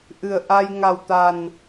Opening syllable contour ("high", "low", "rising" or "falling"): low